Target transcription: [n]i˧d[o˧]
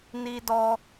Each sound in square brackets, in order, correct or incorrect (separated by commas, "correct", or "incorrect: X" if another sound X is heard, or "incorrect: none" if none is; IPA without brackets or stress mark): correct, incorrect: ɔ˧